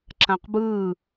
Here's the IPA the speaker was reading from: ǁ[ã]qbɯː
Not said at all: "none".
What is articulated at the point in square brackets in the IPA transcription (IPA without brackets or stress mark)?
ã